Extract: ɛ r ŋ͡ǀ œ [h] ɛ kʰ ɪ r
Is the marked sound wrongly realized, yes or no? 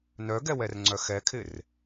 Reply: yes